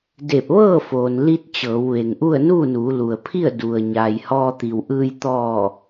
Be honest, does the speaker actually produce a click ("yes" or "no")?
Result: no